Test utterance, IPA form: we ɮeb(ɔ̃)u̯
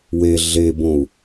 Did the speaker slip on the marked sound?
yes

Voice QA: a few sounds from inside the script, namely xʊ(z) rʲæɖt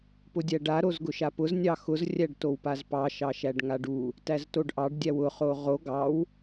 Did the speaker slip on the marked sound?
no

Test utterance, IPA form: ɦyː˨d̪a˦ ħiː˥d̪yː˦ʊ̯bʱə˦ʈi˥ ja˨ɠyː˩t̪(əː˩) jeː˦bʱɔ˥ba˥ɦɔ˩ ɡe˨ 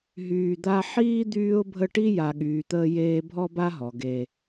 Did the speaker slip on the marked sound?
yes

